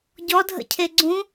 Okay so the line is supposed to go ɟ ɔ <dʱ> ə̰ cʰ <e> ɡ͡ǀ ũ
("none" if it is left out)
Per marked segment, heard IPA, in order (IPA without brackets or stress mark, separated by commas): dʱ, e